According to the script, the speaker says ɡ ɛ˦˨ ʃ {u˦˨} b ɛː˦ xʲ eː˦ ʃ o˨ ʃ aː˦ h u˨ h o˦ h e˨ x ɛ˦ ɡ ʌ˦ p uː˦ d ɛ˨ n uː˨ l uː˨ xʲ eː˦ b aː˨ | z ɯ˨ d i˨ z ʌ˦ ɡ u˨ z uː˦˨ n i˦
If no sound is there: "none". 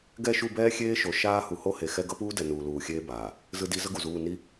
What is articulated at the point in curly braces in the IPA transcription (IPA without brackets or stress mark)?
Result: u˦˨